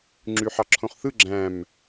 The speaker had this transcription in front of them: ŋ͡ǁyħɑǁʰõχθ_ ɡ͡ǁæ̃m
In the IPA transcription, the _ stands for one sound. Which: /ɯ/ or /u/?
ɯ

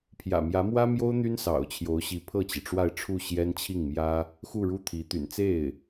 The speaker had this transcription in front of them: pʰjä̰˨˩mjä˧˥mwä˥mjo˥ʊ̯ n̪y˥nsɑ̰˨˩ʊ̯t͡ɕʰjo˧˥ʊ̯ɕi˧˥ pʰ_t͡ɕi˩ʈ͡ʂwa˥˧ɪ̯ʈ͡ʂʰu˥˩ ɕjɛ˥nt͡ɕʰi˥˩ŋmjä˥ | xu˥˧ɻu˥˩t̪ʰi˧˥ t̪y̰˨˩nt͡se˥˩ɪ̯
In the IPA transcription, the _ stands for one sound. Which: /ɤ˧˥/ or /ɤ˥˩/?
ɤ˥˩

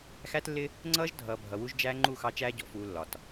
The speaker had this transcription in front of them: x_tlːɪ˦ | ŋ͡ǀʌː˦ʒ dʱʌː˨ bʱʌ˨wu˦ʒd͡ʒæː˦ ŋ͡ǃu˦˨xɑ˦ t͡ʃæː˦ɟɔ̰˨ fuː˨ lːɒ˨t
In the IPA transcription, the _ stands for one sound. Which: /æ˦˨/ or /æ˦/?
æ˦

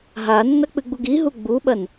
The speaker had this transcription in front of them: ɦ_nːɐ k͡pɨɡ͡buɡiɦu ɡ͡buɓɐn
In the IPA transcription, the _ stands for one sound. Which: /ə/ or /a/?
a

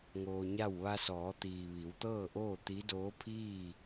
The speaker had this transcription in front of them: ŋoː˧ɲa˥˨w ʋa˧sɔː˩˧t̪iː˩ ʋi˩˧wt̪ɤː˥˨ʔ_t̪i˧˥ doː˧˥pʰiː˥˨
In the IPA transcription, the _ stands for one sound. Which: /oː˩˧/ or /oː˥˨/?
oː˥˨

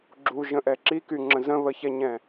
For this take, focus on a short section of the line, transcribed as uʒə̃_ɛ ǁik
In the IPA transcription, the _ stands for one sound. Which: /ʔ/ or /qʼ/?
ʔ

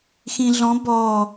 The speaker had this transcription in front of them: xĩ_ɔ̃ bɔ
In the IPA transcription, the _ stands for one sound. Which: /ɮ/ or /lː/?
ɮ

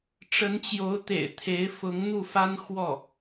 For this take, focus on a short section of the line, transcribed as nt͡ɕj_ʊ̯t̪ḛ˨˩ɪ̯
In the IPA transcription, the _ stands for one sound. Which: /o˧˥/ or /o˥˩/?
o˧˥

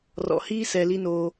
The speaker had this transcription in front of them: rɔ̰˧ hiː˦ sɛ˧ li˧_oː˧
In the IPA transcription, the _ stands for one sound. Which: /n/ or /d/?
n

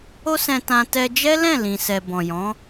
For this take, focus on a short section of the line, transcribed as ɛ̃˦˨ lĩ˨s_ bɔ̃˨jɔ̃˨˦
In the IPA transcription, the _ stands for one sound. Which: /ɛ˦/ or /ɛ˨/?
ɛ˨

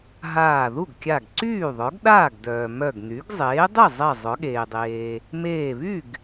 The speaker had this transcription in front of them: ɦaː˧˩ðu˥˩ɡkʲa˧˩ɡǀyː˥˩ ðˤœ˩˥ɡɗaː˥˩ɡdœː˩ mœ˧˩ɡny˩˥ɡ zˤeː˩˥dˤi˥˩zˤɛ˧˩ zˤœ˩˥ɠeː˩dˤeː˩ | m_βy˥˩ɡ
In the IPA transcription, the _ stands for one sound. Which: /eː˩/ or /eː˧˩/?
eː˧˩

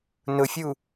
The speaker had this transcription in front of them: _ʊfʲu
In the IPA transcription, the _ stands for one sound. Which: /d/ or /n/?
n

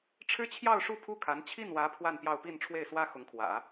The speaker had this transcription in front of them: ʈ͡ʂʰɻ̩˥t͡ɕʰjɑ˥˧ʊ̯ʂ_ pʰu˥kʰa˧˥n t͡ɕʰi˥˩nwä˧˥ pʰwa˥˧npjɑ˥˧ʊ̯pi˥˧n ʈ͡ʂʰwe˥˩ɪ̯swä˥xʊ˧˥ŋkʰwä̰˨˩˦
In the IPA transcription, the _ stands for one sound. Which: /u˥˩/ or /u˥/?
u˥˩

